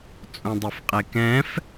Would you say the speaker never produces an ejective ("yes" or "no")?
no